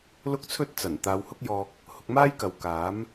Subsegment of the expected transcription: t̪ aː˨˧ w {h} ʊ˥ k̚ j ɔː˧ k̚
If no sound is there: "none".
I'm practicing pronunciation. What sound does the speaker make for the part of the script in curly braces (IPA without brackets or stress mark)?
h